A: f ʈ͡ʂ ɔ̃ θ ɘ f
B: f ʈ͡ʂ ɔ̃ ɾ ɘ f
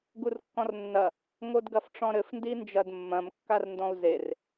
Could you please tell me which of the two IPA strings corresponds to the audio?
B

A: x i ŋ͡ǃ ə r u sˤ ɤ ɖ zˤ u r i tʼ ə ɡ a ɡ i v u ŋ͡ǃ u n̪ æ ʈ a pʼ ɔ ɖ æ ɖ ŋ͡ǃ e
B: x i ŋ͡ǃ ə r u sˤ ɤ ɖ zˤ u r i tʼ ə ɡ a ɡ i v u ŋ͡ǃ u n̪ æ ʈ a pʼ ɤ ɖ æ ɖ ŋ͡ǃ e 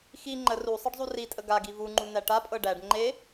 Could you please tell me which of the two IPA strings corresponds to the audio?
B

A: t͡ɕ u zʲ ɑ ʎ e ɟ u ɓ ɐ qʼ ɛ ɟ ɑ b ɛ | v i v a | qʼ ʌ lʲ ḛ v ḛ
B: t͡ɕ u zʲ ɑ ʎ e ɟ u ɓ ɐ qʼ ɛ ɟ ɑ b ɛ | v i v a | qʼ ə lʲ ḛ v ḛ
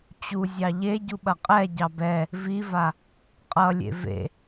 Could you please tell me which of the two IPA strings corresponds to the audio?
A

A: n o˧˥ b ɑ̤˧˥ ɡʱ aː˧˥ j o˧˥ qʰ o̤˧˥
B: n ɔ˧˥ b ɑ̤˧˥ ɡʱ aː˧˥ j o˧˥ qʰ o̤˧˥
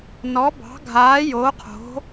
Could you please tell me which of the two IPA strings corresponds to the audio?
B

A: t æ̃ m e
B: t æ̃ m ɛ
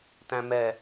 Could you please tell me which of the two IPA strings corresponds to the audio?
B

